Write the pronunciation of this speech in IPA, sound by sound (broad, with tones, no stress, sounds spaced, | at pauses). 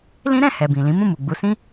l ĩ˦ ɾ ɛ̃˦˨ h ɛ˨ b ĩ˨ l ĩ˨˦ m ũ˦˨ m u˨ ɡ͡b u˨˦ s ĩ˦